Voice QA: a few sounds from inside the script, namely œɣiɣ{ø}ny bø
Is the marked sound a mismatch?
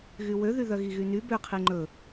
yes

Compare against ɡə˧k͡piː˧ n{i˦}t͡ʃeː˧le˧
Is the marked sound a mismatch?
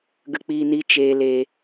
no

